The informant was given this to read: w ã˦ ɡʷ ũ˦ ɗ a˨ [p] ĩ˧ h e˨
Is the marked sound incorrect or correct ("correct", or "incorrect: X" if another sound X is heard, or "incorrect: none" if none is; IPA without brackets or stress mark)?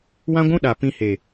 correct